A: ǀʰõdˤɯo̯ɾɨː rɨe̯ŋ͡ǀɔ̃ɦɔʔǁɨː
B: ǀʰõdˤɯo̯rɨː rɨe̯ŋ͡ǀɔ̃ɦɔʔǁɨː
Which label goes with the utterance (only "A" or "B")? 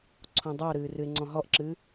A